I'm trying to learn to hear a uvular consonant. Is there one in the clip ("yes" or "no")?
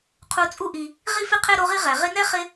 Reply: yes